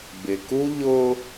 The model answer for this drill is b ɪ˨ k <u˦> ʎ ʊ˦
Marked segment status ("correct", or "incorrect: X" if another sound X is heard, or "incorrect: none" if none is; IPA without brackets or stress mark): correct